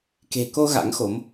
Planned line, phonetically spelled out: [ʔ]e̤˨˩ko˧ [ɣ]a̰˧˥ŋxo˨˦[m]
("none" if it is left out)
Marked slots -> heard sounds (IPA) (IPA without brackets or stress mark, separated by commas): k, ɣ, m